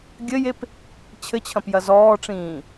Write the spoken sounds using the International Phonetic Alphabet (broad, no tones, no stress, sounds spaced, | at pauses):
ɡʲ ɘ j e p | t͡ɕʰ ɘ t͡ɕʰ ɐ̃ p j ɐ z ɔː ʈ͡ʂ ĩː